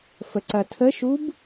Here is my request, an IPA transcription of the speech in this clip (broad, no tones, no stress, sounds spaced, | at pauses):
f ə ǀ ɐ tʰ ə ʃ u b